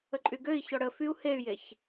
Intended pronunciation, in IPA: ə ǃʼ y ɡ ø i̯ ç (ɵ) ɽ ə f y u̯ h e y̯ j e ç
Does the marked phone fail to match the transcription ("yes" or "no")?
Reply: yes